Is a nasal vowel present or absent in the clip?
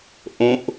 present